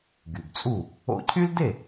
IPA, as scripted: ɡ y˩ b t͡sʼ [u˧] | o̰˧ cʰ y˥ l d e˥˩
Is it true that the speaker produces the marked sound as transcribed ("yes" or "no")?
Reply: no